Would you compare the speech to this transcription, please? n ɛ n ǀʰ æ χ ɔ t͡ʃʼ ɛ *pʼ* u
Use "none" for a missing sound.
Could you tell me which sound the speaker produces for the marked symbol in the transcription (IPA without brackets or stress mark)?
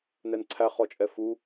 f